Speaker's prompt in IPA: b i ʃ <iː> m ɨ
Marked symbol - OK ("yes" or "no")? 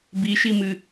no